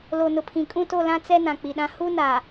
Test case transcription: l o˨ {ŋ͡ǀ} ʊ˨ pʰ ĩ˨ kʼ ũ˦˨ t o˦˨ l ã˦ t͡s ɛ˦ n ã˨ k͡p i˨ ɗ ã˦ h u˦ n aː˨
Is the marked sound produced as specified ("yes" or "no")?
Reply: no